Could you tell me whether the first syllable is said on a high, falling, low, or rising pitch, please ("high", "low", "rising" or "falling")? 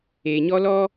low